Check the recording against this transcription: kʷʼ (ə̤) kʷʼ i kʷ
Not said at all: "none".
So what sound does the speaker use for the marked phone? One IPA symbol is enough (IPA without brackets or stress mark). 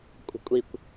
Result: ə̤